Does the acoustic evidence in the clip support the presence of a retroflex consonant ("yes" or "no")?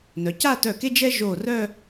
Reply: no